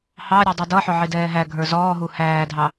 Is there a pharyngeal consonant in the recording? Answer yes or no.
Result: yes